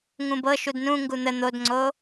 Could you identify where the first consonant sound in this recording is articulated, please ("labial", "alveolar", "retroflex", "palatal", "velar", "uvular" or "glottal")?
velar